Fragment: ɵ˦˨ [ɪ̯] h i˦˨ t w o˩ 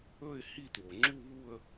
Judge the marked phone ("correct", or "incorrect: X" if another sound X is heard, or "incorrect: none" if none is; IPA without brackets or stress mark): correct